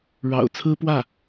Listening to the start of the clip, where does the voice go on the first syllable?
low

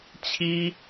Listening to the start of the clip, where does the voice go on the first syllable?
high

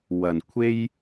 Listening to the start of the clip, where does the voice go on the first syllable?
low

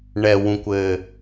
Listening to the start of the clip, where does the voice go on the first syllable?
low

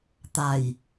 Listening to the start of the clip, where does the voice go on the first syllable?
low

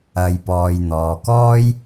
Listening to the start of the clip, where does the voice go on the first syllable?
low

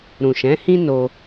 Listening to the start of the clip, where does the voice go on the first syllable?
low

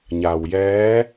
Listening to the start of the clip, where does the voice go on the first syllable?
low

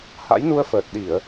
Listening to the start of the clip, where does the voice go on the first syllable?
rising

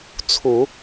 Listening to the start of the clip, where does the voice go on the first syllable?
low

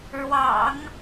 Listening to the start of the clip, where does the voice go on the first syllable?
low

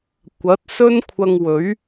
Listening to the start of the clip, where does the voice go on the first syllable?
rising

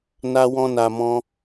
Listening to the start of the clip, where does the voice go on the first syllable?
high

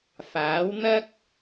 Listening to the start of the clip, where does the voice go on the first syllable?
rising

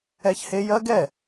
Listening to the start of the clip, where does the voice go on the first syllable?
high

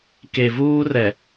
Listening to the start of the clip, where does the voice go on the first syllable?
low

